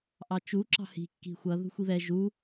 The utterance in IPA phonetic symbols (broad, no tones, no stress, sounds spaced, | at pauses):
ʔ ɑ t͡ʃ u ǁ ɑ̤ h i̤ kː i̤ xʷ ʌ ð ṳ xʷ i β ɛ ʒ u